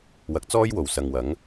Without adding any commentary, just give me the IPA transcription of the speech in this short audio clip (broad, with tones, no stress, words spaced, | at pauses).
wɐ˨˥k̚t͡sɔː˥jwo˨˩w sɐ˨ŋwɐ˨˥ŋ